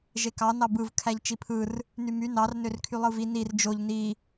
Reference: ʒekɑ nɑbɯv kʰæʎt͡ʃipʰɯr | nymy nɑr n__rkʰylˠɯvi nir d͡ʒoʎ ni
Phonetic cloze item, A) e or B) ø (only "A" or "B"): B